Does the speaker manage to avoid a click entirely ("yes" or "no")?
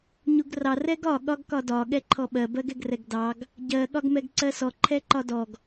no